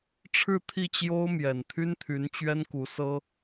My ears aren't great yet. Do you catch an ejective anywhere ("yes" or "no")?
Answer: no